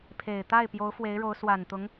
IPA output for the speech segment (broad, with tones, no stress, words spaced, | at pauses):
pʰe˨˩ɪ̯ t̪a˥˩ɪ̯pjo˧˥ʊ̯ fwe˧˥ɪ̯ ɻo˧˥ʊ̯swa˨˩n t̪ʊ˧˥ŋ